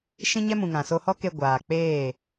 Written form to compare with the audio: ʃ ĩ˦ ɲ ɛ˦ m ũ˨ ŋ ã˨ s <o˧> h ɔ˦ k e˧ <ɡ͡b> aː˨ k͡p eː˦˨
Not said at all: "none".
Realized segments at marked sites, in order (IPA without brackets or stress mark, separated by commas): o˧, ɡʷ